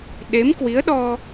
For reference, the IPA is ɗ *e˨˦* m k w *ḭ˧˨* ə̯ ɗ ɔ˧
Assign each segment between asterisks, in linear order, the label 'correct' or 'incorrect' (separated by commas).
correct, incorrect